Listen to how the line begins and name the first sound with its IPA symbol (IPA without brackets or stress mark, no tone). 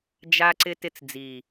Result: d͡ʒ